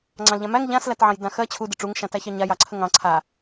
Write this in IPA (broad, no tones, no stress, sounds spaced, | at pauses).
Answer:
ŋ͡ǀ ɑ̃ l ʎ ã m æ ŋ ʎ ã s l æ t ʕ ɑ̃ j d ã x ɜ t͡ɕʰ u d ə ʈ͡ʂ u ŋ ʃ ã t æ ç ɑ ɲ a j ɑ ǀʰ ə ŋ ɑ̃ ǀʰ a